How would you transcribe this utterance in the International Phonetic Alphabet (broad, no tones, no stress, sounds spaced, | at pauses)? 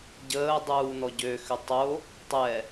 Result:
ɟ əː dˤ uː n ɔ ɟ ø x ʏ tˤ o | tˤ ɛ